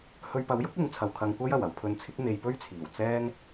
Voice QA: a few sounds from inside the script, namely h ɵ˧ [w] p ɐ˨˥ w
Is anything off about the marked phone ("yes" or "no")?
yes